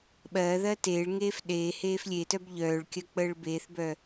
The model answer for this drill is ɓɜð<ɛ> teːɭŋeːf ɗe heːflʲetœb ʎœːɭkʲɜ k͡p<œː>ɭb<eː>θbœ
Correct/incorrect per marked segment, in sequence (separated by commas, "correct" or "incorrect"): incorrect, incorrect, correct